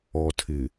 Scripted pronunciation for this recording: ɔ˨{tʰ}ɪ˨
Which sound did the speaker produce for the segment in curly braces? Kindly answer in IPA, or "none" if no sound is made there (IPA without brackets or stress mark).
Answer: tʰ